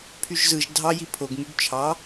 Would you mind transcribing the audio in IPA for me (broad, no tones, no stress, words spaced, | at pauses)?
pʰyʒzɯʒ dʱɑji pʰoɡŋyɡ t͡ʃʰɑ